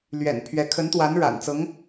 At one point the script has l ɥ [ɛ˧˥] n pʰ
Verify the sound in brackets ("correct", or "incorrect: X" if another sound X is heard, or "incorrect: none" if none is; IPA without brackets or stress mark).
incorrect: ɛ̰˨˩